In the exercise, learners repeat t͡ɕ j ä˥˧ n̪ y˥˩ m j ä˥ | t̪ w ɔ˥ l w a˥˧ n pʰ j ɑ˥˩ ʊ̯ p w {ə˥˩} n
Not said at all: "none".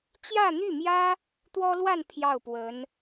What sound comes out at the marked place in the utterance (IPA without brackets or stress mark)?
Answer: ə˧˥